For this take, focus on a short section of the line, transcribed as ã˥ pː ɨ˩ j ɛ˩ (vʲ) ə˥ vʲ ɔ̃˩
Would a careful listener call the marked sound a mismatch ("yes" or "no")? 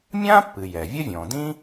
no